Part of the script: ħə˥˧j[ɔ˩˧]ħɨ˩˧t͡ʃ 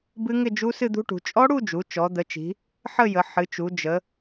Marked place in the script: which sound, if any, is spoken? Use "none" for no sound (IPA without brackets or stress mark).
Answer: ə˩˧